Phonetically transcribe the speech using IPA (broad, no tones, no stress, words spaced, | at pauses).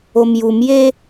omjumje